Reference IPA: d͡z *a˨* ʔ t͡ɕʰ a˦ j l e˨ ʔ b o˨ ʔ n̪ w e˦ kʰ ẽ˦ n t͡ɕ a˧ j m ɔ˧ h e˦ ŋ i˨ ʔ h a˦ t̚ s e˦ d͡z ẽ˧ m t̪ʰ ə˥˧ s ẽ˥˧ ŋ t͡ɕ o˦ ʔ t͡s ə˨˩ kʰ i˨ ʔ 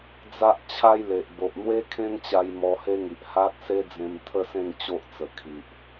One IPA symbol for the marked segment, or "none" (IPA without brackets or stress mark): a˦